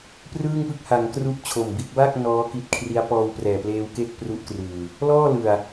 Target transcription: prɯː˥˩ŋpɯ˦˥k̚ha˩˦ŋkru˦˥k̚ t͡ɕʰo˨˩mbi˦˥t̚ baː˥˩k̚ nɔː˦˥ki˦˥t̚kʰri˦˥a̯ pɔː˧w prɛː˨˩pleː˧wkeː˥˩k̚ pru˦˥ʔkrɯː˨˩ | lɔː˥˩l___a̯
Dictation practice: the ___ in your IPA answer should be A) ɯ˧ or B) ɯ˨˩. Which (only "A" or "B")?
B